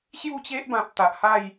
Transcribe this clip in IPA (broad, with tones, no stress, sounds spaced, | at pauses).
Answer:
ɕ j u˥˧ t͡ɕ e˦ ʔ b ã˨ p̚ t̪ a˨ ʔ h a˥˧ j